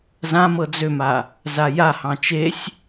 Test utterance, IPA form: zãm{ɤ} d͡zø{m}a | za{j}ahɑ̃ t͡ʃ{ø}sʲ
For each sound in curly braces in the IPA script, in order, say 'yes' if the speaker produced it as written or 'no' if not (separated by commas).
yes, yes, yes, no